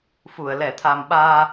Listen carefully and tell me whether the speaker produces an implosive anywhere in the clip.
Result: yes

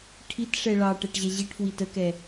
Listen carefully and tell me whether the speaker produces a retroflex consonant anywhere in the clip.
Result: yes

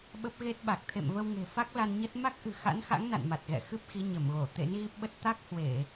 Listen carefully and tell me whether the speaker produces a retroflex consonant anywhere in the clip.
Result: no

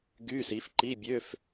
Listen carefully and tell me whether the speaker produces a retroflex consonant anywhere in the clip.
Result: no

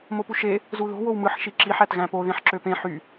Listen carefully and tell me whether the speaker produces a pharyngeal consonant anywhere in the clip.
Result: yes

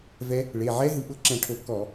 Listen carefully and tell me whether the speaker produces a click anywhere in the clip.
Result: yes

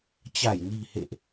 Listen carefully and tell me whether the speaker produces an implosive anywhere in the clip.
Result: no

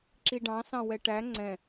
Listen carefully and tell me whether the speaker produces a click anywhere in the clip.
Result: yes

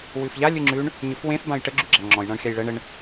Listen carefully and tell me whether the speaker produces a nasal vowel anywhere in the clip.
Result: yes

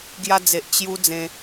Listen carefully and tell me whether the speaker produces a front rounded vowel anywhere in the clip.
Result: no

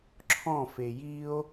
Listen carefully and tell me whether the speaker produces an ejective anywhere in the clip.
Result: no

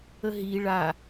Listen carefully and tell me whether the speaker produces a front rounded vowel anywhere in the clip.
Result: no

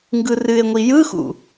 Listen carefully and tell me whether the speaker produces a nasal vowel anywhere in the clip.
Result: no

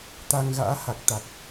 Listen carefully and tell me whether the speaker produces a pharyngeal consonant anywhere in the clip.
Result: no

